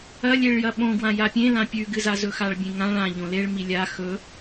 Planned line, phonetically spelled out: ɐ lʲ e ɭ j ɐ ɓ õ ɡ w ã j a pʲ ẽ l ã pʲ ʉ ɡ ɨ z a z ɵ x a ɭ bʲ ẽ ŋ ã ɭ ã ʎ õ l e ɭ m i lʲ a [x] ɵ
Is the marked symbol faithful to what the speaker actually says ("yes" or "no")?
yes